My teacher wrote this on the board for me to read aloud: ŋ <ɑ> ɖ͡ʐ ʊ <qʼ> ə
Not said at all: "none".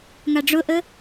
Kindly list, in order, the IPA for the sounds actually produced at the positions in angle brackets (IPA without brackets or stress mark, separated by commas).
a, ʔ